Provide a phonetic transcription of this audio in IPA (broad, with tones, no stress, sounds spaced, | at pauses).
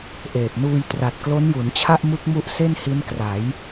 ʔ eː˨˩ p̚ n uː˧ j t r a˨˩ t̚ k l o˦˥ n j u˩˦ n t͡ɕʰ a˥˩ ʔ m ɯ˦˥ k̚ m u˦˥ ʔ s e˥˩ n h i˦˥ n k r a˩˦ j